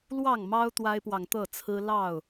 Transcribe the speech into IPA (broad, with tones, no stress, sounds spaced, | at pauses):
l w ɑ˥˨ ŋ m ɑ˦ ʊ̯ t̪ w a˦ ɪ̯ p w ɑ˨ ŋ t̪ ɤ˥˨ t͡sʰ ɹ̩˦ l ɑ˥˨ ʊ̯